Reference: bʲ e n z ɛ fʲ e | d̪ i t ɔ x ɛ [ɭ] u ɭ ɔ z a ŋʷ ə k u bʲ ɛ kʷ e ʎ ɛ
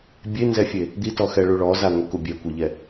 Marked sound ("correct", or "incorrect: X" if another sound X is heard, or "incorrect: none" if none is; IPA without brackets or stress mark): correct